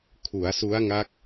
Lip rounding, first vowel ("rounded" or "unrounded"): rounded